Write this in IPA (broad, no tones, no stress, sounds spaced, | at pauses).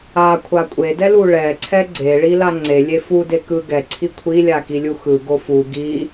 a kʷʰ a kʷʼ e d ɛ l u ɭ ɛ ǀʰ ɛ ɡ͡ǀ e ɭ i l a ŋ͡ǀ e lʲ e f u d e k ɯ ɡ ɛ ǀʰ i kʷʰ i lʲ a k i lʲ u x ɯ ɡ o f u ɡ i